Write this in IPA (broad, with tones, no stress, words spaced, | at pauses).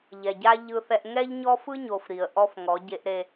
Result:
ʎɛ˨ɟa˦ ʎɯ˦θɛ˦ʔ ŋɛ˦ʎɲɔ˦fɯ˦ɲo˨f ɾi˨ə̯ʔɔ˦f ŋɔ˨˦ɟe˦ʔɾe˦